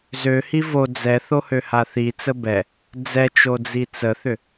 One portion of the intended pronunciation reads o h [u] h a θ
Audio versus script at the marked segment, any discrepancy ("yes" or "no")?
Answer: yes